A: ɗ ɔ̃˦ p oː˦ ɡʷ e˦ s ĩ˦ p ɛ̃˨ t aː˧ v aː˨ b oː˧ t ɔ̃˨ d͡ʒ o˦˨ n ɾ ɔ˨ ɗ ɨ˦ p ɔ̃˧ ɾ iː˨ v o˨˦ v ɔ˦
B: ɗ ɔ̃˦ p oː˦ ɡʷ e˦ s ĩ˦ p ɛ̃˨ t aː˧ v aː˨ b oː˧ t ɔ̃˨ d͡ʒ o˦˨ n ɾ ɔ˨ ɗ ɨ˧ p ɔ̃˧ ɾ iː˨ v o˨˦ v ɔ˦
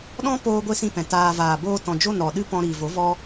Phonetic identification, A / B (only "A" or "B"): A